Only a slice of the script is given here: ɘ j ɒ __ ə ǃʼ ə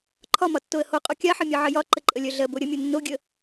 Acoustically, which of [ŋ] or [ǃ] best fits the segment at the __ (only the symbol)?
ǃ